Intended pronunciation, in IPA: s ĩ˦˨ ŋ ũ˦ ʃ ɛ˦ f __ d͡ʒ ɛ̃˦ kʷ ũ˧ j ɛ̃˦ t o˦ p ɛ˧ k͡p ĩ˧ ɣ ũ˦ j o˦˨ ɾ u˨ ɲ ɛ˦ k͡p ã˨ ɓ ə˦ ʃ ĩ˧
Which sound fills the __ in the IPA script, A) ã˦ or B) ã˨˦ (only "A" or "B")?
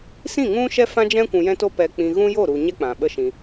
A